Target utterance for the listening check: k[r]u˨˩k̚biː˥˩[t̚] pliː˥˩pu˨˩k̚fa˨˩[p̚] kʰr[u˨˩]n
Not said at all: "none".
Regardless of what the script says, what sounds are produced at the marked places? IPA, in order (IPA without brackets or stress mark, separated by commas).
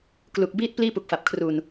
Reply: l, t̚, p̚, u˨˩